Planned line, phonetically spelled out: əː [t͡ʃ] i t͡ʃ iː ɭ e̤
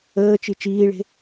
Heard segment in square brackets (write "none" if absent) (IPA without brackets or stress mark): t͡ʃ